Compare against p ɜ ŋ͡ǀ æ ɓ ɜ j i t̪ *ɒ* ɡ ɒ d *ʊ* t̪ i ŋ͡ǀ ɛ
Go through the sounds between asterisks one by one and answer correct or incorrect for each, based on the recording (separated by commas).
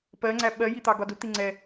incorrect, correct